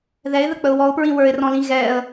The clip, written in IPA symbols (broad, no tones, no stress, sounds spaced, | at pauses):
ð ɛ ɪ̯ ð ə k͡p ə ʊ̯ w ɔ ʊ̯ p ɹ ĩ w ə˞ ɪ̯ r ɔ̃ l ĩ ɣ ɛ ə̯